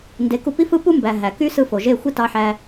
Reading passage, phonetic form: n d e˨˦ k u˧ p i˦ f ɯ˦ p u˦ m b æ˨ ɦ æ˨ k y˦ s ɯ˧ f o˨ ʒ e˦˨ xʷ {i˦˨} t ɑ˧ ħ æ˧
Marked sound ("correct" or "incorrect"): incorrect